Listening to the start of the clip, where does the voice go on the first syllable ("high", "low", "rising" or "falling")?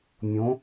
rising